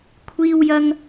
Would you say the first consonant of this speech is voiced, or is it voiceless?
voiceless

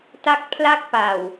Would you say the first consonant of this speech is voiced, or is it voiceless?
voiceless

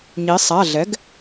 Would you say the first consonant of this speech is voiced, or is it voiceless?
voiced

